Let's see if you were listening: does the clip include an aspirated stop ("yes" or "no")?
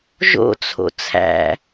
yes